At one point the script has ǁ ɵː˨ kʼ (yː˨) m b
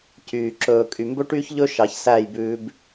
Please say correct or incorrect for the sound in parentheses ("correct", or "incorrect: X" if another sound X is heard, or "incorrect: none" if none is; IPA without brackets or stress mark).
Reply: incorrect: y˨